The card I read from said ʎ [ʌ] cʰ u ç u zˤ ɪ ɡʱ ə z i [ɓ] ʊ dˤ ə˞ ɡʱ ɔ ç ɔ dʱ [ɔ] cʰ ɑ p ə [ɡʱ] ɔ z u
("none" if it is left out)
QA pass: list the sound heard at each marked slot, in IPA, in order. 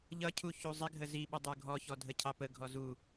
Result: ʌ, ɓ, ə, ɡʱ

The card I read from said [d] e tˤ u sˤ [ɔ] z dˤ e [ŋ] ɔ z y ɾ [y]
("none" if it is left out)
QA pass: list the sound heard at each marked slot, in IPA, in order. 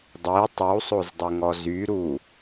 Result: dˤ, o, ŋ, u

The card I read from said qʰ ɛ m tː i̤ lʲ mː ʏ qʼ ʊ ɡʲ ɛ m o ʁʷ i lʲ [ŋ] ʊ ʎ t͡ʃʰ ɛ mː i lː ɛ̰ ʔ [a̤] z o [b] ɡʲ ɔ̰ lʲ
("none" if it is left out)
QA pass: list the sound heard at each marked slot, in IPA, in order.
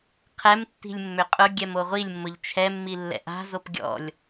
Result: mː, a̤, p

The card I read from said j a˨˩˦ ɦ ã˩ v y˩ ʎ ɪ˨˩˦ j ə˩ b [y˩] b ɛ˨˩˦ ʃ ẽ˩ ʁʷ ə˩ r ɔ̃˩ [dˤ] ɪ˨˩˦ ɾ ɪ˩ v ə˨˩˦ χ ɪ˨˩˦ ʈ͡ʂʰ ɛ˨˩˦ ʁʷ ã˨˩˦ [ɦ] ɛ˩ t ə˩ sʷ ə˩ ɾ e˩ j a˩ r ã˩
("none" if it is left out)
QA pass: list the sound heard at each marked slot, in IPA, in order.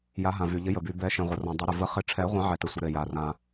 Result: y˩, dˤ, ʕ

